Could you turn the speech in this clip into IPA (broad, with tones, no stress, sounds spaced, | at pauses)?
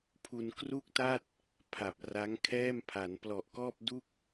pʰ u˧ n k r u˥˩ k̚ t a˥˩ t̚ | pʰ a˨˩ p̚ r a˦˥ ŋ kʰ ɛː˥˩ m pʰ a˩˦ n p l ɔ˨˩ ʔ k ɔː˥˩ p̚ d u˥˩ k̚